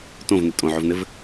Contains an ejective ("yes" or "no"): yes